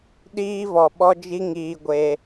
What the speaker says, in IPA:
ɗ iː˧ v ɔ˨ ɓ ɔ˧ d͡ʒ i˧ ŋ iː˧ ɡʷ e˧

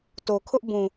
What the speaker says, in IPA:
t o˨ kʰ ʊ˦ ʔ b ũ˨

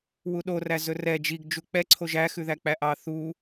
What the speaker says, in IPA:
w u ɗ o r æ z ɵ r ɛ d͡ʒ i ɡ d͡ʒ u k͡p ɛ ǀʰ o ʒ æ x ʉ ð æ k͡p æ ʔ ɑ θ u

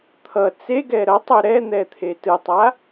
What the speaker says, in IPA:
t̪ʰ ʌ t͡s e ɡ ɛ ɾ ʌ tˤ u ɾ ɛ n̪ ɛ t̪ʰ e t ɯ tˤ a

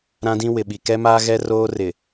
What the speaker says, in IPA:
ɾ ã˦ d ĩ˦ w ɪ˨ ɓ i˨ k ɛ˦ m aː˦ ɣ ɛ˦ r oː˦ r ɪ˨

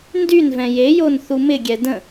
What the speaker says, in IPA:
n d y n v ɛ̃ j e j o n θ u m ɪ ɡʲ ɛ d ə̃

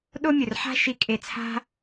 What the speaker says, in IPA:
ɗ o˦ mʲ ɵ˨ r ħ a̤˦ ʃ i˧ kʼ e˧ t͡sʰ a̤˦

